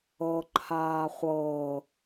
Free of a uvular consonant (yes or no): no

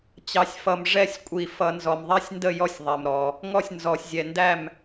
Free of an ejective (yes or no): no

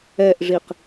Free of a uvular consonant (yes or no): no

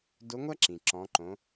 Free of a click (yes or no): no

